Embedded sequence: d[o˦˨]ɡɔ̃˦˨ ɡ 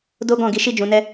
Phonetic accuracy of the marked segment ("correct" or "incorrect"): incorrect